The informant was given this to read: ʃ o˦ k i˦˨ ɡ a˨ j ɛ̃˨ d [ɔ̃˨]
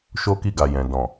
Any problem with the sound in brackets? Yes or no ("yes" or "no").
no